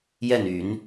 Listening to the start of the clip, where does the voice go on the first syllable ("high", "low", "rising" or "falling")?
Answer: falling